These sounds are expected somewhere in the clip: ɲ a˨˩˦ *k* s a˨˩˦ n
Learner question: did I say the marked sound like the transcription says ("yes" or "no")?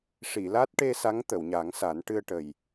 no